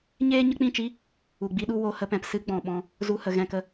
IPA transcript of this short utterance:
ɲ eː˦ ɲ ə˦ k͡p ĩ˦˨ t͡ʃ i˦ | u˨ ɡ͡b i˦ ɗ u˦ w o˧ h ə˧ p ɛ̃˨ p s ɨ˦ ɡ͡b ɔ̃˨ ɓ ɔ̃˧ | z u˧ h ə˨ ɣ ɛ̃˧ k ə˦

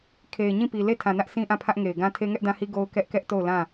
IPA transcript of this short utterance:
kʰ e˨ ɪ̯ ɲ ĩ˦˨ p i˨ l e˦˨ tʰ ã˨ n ä˦ ʔ s ĩ˦ ʔ ã˦˨ pʰ ä˦ ʔ ŋ e˨ ɪ̯ ɡ ã˦ tʰ e˦ ŋ ɛ˦ ʔ d ã˦ h i˦ ɡ o˦ ʊ̯ k ɛ˦ ʔ k ɛ˦ ʔ t o˦˨ ʊ̯ l ã˦˨

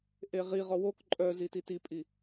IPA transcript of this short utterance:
ʔ e ʁ i ʁ ɔ w o k ǃʼ œ z i t i t i pʼ i

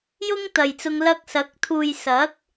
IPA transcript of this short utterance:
j ʊ˥ ŋ t̪ ɐ˨ j t͡s ʊ˧ ŋ l ɐ˧ k̚ s ɐ˨˥ k̚ t̪ʰ uː˨ j s ɐ˨˥ k̚

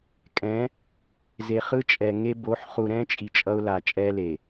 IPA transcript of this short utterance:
kʼ ɛ̃˨˦ | z e˨ χ ɯ˦ t͡ʃʼ ɛ˨ ŋ e˦ b o˨˦ ħ χ u˨ ɾ ɛ̃˦ t͡ʃʼ i˨ t͡ʃʼ ʌ˦ ʊ̯ l a˨ t͡ʃʼ ɛ˦ l e˨

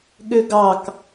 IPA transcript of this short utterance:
ɠ ø ɡ ɑ k

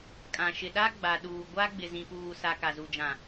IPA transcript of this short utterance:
kʼ ã˨ ʃ ɪ˨ ɗ a˦ ɡ͡b a˨ ɗ uː˨ ɡʷ a˦ ɡ͡b ɪ˨ z ĩ˨ p uː˨ s a˨ k a˨ z u˨ d͡ʒ ã˨

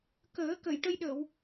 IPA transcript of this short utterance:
k əː˨˩˦ k ə˨˩˨ j ʈ ə˧ j ɗ ə˨˩˨ w

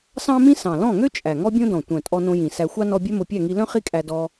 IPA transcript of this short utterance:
s ɑ̃˥ m ĩ˥ s ɑ̃˨˩ l ɔ̃˥˨ ŋ ø˥ t͡ʃʼ æ˨˩ ŋ ɔ˥ bʲ õ˥ d ɔ̃˨˩ tʷ œ̃˨˩ tʼ ɔ˧ n õ˧ j ĩ˨˩ s æ˧ xʷ ɑ˥ n ɔ˧ bʲ œ˥ m o˧ pʲ æ˥˨ ŋ i˧ l œ̃˥ χ i˥ kʼ æ˧ d ɔ˧

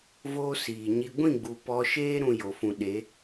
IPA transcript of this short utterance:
v oː˦ s iː˨ ɲ i˧ ɡʷ ĩ˦˨ ɡ͡b u˨ p ɔ˧ ʃ eː˦ ɾ ũ˧ j o˨ f ũ˨ ɗ e˨˦

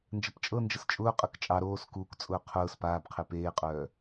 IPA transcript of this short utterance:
n d͡ʒ ə p t͡ʃʼ ɤ n d͡ʒ ə s t͡ʃʼ ʊː qʼ ɤ k t͡ʃʼ ɑ ɾ oː s k uː k t͡sʼ ʊː qʰ ʊː s p aː b qʰ e p eː qʼ œː

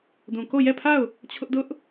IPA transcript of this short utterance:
d ũ˨ k o˦˨ j ɛ˦˨ pʰ a˦˨ ʊ̯ | t͡ɕʰ ʊ˦ ʔ d ʊ˦ ʔ

